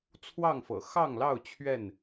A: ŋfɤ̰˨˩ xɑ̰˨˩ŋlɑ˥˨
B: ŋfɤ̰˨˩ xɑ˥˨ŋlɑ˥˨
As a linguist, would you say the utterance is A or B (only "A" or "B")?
B